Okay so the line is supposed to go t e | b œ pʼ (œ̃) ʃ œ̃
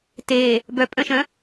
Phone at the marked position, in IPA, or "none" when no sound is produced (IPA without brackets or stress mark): œ̃